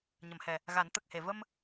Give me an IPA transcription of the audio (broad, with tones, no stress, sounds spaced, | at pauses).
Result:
ɲ ə˨˩˨ m h ɛ˨˩ | ɣ a˨˩˦ n t̪ ə˨˩ k̚ h e˨˩˨ v ə˧ m